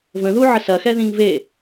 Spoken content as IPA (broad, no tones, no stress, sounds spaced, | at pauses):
v ə̃ ð u ʕ ə s ɐ x ɛ ð ĩ ŋ v e